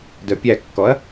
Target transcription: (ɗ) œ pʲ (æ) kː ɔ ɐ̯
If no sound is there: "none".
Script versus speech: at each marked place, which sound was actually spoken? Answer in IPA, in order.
d, æ

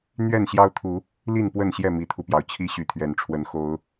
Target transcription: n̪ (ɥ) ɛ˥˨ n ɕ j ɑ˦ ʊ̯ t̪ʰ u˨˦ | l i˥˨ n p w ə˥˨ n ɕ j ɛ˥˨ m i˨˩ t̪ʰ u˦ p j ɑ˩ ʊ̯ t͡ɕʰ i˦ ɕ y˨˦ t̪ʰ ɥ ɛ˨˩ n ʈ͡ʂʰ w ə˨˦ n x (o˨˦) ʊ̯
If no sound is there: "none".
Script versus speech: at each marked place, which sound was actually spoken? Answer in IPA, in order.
ɥ, o˨˦

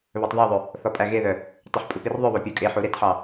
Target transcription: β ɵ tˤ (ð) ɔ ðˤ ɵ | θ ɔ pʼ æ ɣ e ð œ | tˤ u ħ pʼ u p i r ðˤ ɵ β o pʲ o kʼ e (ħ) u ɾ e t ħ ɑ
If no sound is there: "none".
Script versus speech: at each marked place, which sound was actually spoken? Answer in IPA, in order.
ð, ħ

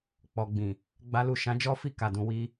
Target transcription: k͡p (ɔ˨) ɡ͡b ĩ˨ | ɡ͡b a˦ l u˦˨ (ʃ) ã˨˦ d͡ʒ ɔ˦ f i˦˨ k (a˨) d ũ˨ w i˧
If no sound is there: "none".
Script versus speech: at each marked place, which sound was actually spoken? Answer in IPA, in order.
ɔ˨, ʃ, a˨

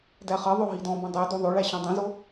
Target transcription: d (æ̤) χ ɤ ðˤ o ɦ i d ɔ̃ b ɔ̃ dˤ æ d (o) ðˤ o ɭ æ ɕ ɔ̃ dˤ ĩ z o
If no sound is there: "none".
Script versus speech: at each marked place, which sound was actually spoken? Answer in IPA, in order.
æ, o

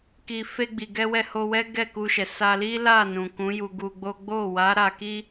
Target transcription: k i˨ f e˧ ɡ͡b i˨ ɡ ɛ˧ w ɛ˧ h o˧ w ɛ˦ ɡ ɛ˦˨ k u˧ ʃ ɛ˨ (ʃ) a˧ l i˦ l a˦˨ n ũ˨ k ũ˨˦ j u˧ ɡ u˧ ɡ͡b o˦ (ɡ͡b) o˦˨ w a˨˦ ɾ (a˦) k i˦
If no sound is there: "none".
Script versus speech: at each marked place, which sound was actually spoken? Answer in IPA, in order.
s, ɡ͡b, a˧

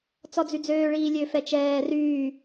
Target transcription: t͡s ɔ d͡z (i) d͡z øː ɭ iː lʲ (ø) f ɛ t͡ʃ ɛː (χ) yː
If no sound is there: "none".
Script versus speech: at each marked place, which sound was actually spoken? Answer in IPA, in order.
y, ø, r

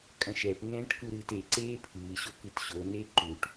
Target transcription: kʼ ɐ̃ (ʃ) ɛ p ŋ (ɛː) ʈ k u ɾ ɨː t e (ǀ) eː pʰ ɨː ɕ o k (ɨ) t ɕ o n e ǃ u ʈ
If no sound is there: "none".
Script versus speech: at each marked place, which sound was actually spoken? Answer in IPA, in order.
ʃ, ɛ̃ː, ǀ, ɨ

